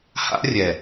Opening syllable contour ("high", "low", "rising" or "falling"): high